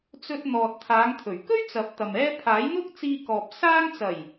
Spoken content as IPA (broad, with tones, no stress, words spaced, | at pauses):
t͡sɵ˧t̚n̪ɔː˨t̚ t̪ʰaː˨˧ŋt̪ʰɵ˨˩ɥ kɵ˥ɥ t͡sɐ˨˥p̚t̪ɐ˨mɛː˥ pʰaː˨˥jn̪ʊ˥k̚t͡siː˧kɔː˨p̚ saː˥ŋ t͡sɐ˨˩j